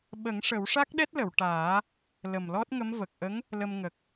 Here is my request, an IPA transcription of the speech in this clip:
ɓə˨˩˦ŋ ʂə˨˩˦wʂa˦˥k̚ɗɛ˦˥t̚lə˨˩˨w ʈaː˨˩˦ | lə˨˩mlɔ˦˥t̚ŋə˧˥mvə˨˩k̚ ʔə˧˥ŋ | lə˧mŋə˨˩k̚

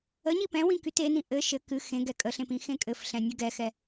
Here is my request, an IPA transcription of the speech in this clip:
əɲi pɛ̃wĩ kytenĩ ʔɘ ʃɘ kɨ xẽ ɡɛkʼəɬẽp ĩxẽkʼɘfɬɛ̃ nʲɘɡɛxɛ

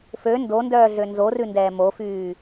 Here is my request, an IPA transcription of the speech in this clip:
fø ndondœːɮø nzorʉndɛː mofyː

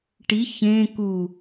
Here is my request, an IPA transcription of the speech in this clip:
ʈi çẽ ku

